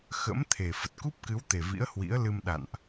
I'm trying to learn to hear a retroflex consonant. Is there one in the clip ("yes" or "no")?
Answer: no